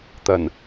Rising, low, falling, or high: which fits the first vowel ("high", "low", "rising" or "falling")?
low